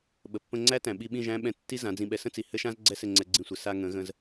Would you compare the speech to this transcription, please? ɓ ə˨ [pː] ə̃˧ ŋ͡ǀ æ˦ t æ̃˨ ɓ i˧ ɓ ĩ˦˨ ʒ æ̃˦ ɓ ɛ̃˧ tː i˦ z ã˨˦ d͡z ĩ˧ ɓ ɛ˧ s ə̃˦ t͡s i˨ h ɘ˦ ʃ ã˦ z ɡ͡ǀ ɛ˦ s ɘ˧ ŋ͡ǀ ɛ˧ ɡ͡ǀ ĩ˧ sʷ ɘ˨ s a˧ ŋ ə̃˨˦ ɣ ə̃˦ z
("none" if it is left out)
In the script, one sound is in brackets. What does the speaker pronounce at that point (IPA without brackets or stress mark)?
pː